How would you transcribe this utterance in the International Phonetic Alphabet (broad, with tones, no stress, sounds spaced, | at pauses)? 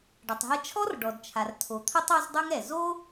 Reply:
ɖ ɐ˩ tˤ ɦ ɐ˥ t͡ʃʰ ɔ˥ r ɖ ɔ˩ d t͡ʃʰ a˩ r tʰ o˩ t̪ʰ ɐ˥ tˤ ɔ˥ z dˤ u˥ ŋ ɛ˩ z o˥